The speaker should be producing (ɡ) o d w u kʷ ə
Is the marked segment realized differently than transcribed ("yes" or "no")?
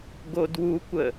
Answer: no